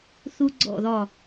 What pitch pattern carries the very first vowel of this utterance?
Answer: high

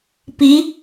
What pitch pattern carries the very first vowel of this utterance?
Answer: rising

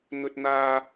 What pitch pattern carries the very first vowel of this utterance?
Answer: high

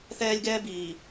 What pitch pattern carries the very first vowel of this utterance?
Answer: high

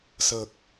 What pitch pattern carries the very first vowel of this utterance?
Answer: low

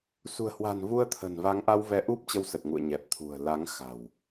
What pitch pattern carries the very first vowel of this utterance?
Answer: low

